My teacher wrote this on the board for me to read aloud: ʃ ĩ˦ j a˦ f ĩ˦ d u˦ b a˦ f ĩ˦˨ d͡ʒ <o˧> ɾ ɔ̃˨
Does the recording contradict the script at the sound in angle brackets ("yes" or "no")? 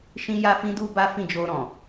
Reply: no